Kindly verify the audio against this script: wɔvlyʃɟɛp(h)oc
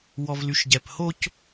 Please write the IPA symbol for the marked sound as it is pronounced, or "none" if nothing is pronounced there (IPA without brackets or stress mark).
h